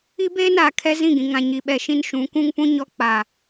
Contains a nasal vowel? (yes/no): yes